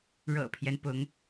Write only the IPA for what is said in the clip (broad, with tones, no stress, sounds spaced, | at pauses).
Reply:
ɻ ɤ̰˨˩ pʰ j ɛ˦ n p ʊ˧˥ ŋ